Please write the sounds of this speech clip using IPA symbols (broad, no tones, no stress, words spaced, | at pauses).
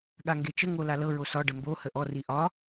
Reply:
ɠaŋɡet͡ʃə ŋolalɤ ɹosɒ ɖəmbo həʔɔ riʔɒ